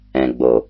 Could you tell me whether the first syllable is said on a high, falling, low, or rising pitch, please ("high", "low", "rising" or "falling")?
low